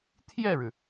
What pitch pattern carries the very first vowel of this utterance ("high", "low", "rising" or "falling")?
falling